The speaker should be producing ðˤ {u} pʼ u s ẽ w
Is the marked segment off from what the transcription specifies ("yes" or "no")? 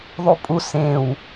no